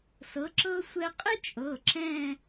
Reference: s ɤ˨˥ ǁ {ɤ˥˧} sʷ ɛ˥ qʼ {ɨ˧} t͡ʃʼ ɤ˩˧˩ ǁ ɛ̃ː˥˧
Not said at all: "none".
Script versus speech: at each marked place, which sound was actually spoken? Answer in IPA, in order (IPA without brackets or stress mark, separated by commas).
ɤ˥, ɨ˥